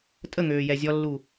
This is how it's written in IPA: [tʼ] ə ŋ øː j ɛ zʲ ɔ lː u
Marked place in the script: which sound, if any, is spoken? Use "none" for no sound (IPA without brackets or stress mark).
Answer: tʼ